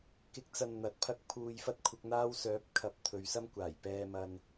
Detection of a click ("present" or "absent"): absent